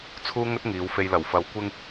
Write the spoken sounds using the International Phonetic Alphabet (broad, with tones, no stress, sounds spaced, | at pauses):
t͡sʰ uː˥ ŋ ɵ˥ t̚ ŋ iː˨˧ w f e˧ j l ɐ˨˩ w f ɐ˨˧ w kʷ ɪ˧ ŋ